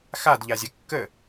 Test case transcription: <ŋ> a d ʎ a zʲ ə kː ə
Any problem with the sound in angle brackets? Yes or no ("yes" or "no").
yes